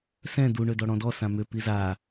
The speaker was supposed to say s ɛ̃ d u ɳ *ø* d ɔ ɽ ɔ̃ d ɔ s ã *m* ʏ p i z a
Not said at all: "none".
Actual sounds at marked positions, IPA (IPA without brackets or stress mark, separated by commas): ø, m